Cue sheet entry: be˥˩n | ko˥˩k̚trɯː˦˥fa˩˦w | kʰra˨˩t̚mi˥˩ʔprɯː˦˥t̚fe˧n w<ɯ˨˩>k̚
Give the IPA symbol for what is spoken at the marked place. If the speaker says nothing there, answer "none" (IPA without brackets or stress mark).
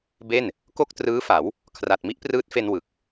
ɯ˨˩